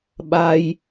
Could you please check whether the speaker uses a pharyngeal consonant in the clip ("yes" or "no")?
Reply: no